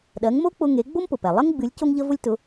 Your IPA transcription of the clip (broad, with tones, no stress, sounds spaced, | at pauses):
ɗ ɜ˩˥ ŋ m o˥ k͡p ʊ˧ ŋ e˩˥ ɡ͡b o˥ m p ʊ˩ p ɛ˩ lˠ ə˥ ŋ ɡ͡b ɨ˩˥ lʲ c o˥ ŋ ʎ ə˥ v ʊ˥ lʲ t ʊ˩˥